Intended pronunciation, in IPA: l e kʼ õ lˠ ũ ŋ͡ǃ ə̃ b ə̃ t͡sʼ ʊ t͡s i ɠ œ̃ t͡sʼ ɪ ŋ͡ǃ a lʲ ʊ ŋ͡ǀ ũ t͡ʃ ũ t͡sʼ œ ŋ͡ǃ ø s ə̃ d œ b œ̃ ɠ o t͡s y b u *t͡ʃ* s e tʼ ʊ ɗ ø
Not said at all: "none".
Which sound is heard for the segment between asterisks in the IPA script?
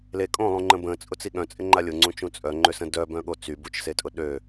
t͡ʃ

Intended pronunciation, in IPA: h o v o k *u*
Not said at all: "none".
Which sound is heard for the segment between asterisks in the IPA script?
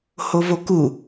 u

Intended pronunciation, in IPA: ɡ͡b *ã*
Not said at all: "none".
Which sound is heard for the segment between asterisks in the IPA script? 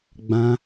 ã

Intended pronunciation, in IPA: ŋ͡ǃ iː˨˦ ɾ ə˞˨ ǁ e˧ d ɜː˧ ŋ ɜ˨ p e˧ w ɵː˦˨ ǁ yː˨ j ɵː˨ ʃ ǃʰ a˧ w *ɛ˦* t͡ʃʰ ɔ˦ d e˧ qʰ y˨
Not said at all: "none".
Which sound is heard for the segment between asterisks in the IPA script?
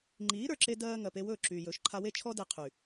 e˦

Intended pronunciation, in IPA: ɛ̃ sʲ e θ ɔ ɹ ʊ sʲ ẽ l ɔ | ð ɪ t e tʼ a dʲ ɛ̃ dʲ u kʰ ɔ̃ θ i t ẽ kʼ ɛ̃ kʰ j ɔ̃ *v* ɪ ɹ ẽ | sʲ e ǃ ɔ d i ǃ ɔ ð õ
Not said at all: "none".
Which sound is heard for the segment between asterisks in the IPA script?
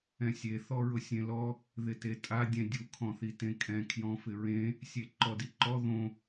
f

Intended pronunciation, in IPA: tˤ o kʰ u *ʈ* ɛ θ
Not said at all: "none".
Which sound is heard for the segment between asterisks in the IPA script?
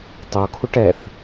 ʈ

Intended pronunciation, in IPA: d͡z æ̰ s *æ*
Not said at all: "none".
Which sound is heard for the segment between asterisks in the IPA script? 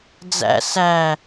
æ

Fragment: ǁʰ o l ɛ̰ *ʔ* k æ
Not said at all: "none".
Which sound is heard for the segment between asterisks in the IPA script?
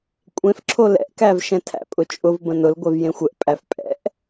ʔ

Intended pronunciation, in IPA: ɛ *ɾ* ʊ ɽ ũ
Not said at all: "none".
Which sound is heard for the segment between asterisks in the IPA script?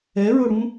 ɹ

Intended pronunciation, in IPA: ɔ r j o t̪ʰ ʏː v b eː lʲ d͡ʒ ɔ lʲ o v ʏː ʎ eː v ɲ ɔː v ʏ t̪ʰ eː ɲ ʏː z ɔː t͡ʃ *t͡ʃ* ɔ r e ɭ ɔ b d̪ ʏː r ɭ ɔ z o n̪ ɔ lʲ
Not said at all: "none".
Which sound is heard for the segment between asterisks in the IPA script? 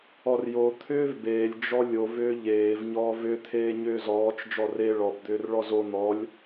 d͡ʒ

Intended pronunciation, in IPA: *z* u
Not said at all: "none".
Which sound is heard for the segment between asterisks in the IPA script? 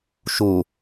ʃ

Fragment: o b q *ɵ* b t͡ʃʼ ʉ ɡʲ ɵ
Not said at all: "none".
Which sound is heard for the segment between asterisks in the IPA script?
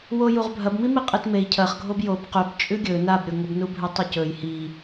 ɵ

